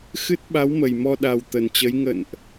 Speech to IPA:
x ɨ˦˥ t̚ ɓ a˨˦ w m ə˨˩ j m ɔ˧ ɗ a˨˩ w t̪ ə˨˩ n t͡ɕ ə˨˦ j ŋ ə̰˧˨ n ʔ

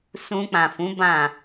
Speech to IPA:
s ũ˧ k͡p ã˨ f ũ˨˦ b ã˦˨

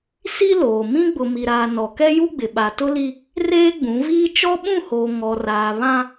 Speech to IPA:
s i˦ l oː˨ m ĩ˦ ɡ͡b ʊ˨ m i˨ ɾ aː˨ n ɔ˨ k ɛ˦ j u˦ ɡ͡b ɪ˨ ɓ a˨ t ʊ˦ l i˦ | r eː˦ ɡ͡b ũ˨˦ v iː˦ t͡ʃ ɔ˦ ɓ ũ˦˨ h oː˨ ŋ ɔ˨ r aː˨ β ã˦

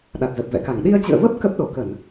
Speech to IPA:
ɗ a˨˩ t̚ z ə˨˩ p̚ v ɛ̰˧˨ k a˧˩ ŋ ɗ i˧ ə̯ t͡ɕ ɨ̰˧˨ ə̯ v ə˦˥ p̚ k ə˦˥ p̚ ɗ o˧˩ k ə˧˩˨ n

